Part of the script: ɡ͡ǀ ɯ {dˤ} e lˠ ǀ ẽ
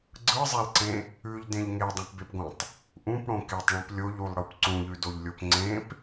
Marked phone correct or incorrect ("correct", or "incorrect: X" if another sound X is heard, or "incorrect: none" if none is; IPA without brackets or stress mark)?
incorrect: zˤ